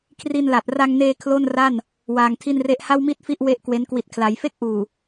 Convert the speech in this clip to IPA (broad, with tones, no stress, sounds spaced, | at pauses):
kʰ r i˧ n l a˨˩ t̚ r a˧ ŋ n eː˧ kʰ l o˥˩ n r a˥˩ n | w aː˧ ŋ tʰ i˥˩ n r e˥˩ ʔ h a˥˩ w m i˥˩ t̚ f i˦˥ ʔ w e˥˩ ʔ k w e˦˥ n k w i˨˩ t̚ kʰ l a˩˦ j f e˥˩ k̚ ʔ uː˨˩